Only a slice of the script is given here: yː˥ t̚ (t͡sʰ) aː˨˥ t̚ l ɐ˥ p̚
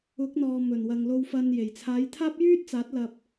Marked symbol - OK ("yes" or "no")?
no